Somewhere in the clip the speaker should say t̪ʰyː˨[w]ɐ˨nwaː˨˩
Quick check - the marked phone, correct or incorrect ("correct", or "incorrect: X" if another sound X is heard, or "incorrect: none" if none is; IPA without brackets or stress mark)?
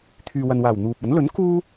correct